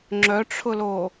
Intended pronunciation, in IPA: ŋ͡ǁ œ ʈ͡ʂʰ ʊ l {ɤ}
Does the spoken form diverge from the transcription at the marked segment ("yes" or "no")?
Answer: yes